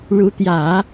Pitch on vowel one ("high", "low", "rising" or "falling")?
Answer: rising